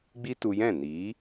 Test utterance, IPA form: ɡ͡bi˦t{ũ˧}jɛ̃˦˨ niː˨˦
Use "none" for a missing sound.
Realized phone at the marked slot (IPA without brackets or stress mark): u˧